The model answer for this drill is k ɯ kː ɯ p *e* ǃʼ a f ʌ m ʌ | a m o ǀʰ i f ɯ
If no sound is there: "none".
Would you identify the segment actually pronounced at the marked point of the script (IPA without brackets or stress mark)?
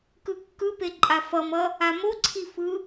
e